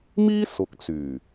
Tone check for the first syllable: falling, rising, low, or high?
high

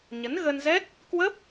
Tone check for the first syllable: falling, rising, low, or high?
rising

